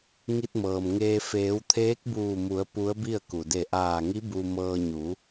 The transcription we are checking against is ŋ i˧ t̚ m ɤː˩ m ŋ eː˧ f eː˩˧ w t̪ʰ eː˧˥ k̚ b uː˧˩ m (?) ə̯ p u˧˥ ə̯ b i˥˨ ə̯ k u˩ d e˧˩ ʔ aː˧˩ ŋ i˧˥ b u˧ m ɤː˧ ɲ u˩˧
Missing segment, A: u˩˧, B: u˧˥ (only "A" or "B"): A